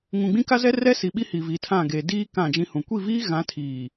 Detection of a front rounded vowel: absent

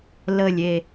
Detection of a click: absent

